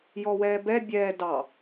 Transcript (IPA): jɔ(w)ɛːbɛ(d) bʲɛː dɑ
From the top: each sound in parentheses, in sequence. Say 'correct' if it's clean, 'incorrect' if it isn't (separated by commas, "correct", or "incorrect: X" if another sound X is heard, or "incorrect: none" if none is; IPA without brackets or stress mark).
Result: correct, incorrect: none